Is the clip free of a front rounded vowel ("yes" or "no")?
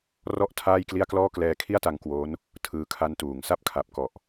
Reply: yes